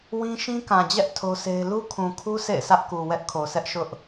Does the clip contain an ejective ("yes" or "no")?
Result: no